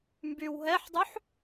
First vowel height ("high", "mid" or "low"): high